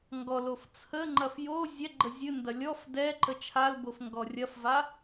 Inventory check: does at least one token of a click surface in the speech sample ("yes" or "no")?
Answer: yes